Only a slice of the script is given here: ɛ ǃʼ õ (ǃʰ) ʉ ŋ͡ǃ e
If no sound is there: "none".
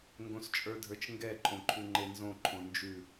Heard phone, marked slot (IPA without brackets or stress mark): ǃʰ